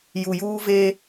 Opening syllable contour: low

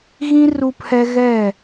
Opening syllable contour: high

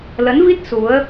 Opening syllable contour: rising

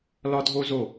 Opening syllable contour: high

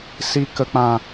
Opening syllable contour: low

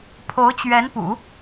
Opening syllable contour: rising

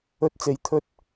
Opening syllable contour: high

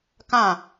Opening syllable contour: falling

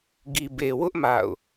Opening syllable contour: low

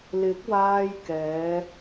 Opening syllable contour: rising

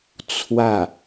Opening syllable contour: falling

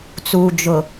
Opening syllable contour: low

